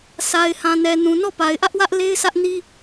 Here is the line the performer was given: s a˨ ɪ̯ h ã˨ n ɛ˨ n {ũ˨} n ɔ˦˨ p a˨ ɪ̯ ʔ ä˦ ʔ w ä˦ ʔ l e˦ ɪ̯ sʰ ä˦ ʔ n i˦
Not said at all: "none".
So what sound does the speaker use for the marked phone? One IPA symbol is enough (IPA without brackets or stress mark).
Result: ũ˨